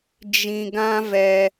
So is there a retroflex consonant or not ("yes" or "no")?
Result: no